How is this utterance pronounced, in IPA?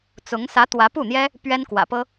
t͡s ʊ˧˥ ŋ s ä˧˥ t̪ w ä˧˥ p u˥˩ n̪ j ɛ˥ | p ɥ ɛ˥ n k w ä̰˨˩ p ɤ˥

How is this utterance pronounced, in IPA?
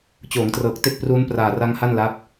t͡ɕ oː˩˦ ŋ t r ɤː˨˩ k̚ t e˥˩ k̚ p r uː˦˥ n p r aː˨˩ r a˦˥ ŋ h a˥˩ n l a˦˥ p̚

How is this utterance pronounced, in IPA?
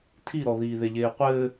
tʰ i ɾ ɔ ð iː ð e ʎ eː qʷ ɘː

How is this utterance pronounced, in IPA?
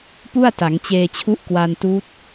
p u˥˩ a̯ t a˩˦ ŋ t͡ɕ eː˧ t͡ɕʰ u˦˥ ʔ k w a˧ n t uː˦˥ t̚

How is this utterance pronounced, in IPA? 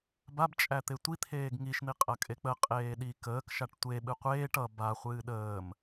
b a b t͡ʃʼ æ t̪ e tʷ i t̪ʰ eː ɡ ŋ i ʃ n̪ i qʼ ɐ kʼ e k͡p ə qʼ eː ɗ i k əː k ʃ a ʈ tʷ e ɓ ɨ qʷ eː ʈ ʌ b a χʷ ɨː ɗ əː m

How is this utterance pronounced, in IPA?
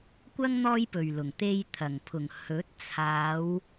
kʷ ɐ˥ ŋ n̪ ɔː˥ j p ɵ˨ ɥ l ʊ˨˩ ŋ t̪ e˧ j t̪ʰ ɐ˨˩ ŋ pʰ ʊ˨˩ ŋ h ɵ˨˥ t̚ t͡sʰ aː˨˧ w

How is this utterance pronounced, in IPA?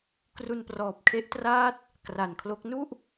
k r u˧ n p r ɔː˨˩ p̚ kʰ e˦˥ ʔ t r aː˥˩ t̚ | k r a˨˩ n kʰ l o˦˥ k̚ n u˥˩ ʔ

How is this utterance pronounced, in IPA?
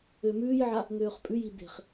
ø m ʉː j ʕ a | ŋ øː χ pʼ ʉ j i d̪ e̤ χ

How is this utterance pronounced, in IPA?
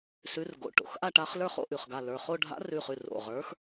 s ʉ˨˥ r ɡ o̰˩˧˩ ʈ o̰˩˧˩ x ʔ a˥˧ ʈ a˨˥ χ l ə˞˥˧ χ o̰˥˧ ʔ ʉ˩ χ ɡ a˩˧˩ l ə˞˩˧˩ χ o˥˧ ɖʱ a̰˨˥ r ʉ˩˧˩ χ ʉ˩˧˩ r o̰˩˧˩ ʁ ə˞˨˥ x

